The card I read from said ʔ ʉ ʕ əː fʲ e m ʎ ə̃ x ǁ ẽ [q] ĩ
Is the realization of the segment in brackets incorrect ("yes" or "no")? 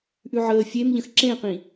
no